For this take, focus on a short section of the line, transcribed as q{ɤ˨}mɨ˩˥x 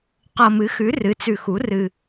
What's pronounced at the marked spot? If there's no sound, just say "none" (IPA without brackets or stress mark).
ɤ˨